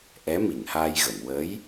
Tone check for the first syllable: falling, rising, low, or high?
rising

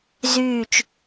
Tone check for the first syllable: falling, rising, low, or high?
low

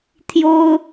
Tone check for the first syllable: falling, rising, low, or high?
high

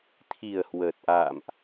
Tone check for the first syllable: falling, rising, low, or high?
low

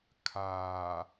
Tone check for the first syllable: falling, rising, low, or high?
low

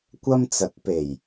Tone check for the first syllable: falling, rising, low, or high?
high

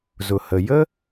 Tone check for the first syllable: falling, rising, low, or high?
low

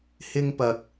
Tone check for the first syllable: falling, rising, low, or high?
high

